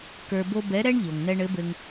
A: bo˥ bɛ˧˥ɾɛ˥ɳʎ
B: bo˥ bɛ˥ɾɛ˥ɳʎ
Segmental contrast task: A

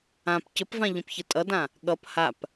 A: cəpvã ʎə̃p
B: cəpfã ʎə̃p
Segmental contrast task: A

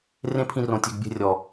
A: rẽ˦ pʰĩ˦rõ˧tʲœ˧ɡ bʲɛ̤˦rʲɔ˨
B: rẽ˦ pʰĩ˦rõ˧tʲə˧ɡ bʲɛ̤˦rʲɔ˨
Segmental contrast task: A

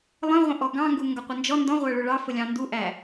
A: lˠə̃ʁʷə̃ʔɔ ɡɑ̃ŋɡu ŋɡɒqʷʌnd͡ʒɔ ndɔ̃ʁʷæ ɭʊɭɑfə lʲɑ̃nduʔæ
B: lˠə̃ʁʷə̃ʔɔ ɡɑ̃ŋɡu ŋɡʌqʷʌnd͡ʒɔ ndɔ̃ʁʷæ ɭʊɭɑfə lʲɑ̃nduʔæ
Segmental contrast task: B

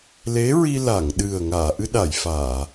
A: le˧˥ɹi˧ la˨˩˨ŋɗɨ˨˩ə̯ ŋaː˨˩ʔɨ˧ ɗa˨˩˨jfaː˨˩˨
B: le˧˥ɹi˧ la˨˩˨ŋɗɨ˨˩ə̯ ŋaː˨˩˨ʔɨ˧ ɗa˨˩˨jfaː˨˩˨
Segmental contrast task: B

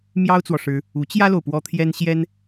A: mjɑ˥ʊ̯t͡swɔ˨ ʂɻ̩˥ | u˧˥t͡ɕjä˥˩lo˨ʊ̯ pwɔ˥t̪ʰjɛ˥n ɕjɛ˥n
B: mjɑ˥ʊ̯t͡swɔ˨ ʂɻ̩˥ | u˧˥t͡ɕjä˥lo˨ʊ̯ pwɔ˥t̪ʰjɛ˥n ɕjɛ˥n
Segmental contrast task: B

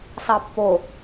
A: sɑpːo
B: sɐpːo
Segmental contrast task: A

